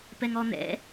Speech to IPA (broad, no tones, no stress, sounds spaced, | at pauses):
p ɛ ŋ ɔ n̪ ɛ̰